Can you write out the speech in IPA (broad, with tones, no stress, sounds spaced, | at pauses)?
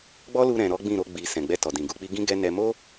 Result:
ɡ͡b ɔ˦ l u˧ ɾ ɛ̃˨ ɾ ɔ˨˦ ɡ͡b ĩ˦˨ ɾ o˧ ɡ͡b i˨ s ɛ̃˨ ɡ͡b ɛ˧ t ɔ˨ d ĩ˨ ɡ u˨˦ k͡p i˦ ɡ ĩ˦ ɡ ɛ˦ n ɛ˧ m o˦